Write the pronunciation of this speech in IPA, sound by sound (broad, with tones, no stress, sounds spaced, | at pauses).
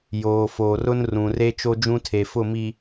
j oː˨ f oː˨ r ʊ˦ n r ũ˨ r e˦ t͡ʃ o˦ d͡ʒ ũ˦ tʰ e˨ f ʊ˦˨ m i˨